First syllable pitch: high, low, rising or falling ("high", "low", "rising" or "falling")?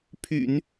low